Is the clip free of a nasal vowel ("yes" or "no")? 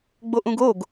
no